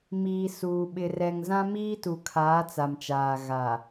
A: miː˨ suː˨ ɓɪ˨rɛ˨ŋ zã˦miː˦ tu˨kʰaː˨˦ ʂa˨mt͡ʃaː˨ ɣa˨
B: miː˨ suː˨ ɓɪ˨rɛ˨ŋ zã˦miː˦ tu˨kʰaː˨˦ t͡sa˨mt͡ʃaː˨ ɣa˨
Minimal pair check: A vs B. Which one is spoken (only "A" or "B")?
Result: B